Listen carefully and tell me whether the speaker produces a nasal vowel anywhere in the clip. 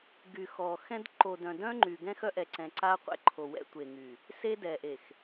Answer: yes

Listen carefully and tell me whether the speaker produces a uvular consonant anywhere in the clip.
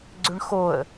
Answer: no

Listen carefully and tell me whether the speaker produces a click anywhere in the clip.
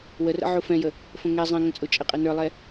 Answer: no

